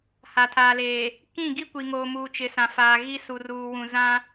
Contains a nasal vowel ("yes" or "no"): yes